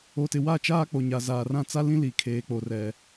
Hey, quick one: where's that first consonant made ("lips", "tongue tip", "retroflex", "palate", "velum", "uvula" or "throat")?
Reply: tongue tip